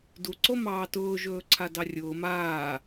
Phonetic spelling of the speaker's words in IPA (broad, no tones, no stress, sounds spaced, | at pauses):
d u ǀ o m ɑː t ʊː ʒ ɵː ǀʰ a d ɑ rʲ ʊː m aː